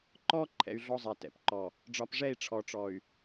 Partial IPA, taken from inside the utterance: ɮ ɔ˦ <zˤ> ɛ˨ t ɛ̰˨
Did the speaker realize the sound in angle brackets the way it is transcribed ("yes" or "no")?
yes